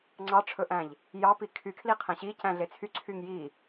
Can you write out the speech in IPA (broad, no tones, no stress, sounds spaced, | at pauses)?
ŋ͡ǀ ɑ ʈ͡ʂʰ ɵ ʔ æ̃ ʎ | j ɑ p i kʰ y kʰ l i qʰ æ̃ ɕ i c æ̃ ɮ e t͡sʰ y ǀʰ y ŋ j i